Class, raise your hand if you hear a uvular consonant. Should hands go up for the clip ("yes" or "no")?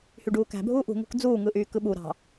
no